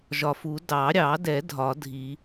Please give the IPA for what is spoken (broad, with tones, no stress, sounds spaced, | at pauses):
ʒ ɒ˨ f u˨˩˦ d ɑ˨˩˦ ɾʲ ɑ˨˩˦ d ɛ˨˩˦ dʱ ɒ˨˩˦ dʱ i˨˩˦